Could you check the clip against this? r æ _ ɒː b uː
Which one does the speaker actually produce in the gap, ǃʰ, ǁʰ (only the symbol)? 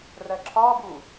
ǁʰ